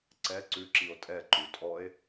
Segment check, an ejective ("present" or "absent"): present